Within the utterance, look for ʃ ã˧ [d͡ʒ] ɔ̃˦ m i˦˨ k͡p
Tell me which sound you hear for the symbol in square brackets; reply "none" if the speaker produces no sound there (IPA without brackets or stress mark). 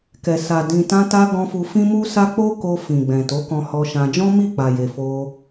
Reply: d͡ʒ